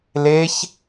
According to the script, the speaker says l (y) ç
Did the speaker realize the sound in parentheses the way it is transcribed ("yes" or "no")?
no